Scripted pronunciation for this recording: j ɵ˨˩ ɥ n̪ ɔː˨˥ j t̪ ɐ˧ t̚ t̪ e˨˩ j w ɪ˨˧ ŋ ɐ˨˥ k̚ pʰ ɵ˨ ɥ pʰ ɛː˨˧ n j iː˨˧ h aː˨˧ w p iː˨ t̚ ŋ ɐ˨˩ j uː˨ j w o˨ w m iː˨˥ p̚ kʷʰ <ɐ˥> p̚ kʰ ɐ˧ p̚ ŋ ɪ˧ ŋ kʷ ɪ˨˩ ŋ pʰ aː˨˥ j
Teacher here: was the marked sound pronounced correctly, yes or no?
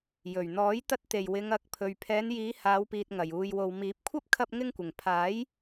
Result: yes